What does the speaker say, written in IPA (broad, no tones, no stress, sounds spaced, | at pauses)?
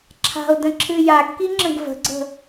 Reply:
ǁʰ a̤ o̯ d ə̃ ǁʰ ɨ j a ɡ k i ŋ͡ǁ ə̃ ɡ v ə̤ ɡ͡ǀ ə̤